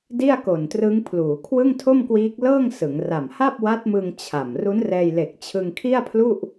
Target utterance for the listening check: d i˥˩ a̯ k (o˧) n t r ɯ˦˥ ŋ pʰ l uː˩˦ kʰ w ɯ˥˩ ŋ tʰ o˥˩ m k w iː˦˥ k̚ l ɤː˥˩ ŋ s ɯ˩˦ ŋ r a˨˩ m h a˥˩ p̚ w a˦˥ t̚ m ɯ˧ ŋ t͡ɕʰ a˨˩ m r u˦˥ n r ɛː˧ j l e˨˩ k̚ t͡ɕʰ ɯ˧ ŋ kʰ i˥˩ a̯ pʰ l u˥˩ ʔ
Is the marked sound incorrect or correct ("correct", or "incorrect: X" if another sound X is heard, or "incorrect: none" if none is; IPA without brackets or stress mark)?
incorrect: o˨˩